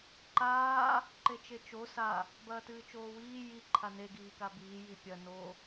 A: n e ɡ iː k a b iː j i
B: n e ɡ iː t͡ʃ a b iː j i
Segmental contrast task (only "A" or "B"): A